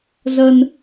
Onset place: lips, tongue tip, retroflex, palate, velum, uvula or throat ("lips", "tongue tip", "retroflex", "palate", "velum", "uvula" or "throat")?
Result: tongue tip